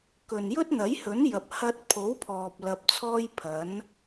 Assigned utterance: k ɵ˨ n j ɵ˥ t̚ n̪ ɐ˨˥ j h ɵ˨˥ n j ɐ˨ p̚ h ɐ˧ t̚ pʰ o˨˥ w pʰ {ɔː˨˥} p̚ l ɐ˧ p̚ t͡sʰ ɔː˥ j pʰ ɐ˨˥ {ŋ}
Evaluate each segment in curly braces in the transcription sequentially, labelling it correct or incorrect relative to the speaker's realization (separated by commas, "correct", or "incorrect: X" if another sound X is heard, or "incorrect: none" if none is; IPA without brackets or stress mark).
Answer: incorrect: ɔː˨, incorrect: n